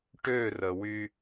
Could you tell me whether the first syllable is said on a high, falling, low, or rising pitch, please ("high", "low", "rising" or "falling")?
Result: falling